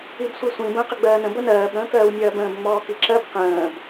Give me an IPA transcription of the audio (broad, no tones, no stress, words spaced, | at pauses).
ibsʷisʷĩ bə̃ːqəɡ͡bɜːnə̃ bənɜːb ɾə̃ːkɜːwnʲɜːbə̃ːb ŋ͡mɔːkiǁɜb qə̃ːb